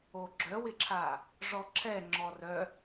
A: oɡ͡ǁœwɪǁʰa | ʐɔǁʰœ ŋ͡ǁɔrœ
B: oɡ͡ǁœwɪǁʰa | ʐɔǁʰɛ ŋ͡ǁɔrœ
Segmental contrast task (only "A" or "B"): B